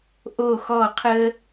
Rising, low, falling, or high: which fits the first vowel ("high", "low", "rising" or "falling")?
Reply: falling